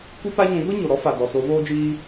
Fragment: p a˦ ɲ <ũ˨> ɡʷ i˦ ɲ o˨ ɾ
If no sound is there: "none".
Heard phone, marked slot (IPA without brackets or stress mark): ũ˨˦